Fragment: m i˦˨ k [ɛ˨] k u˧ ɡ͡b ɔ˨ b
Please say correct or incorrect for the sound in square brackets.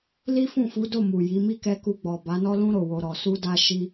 incorrect